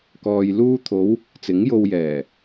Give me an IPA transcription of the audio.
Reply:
k ɔː˨ j l uː˧ t̪ʰ o˨˧ w | t͡s ɪ˨˥ ŋ j o˧ w j ɛː˨˩

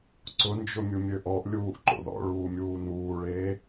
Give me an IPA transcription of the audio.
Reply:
ǀ ʊ n d͡ʒ ʊ mʲ u mʲ ø ʔ ɔ ʔ lʲ uː ʔ ǃ o̰ ð ɔ̰ ɭ uː mʲ uː n uː ɭ eː

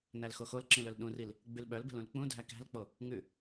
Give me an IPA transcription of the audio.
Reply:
n æ l x o x o l ǁ ĩ l ɵ l ɗ ũ r i l | ɡ͡b ʉ l ɓ œ l b ɛ̤ l ũ l k͡p ũ dʱ æ k æ̤ l k͡p o | ŋ ʉ

